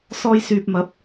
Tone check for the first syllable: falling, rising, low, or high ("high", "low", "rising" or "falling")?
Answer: high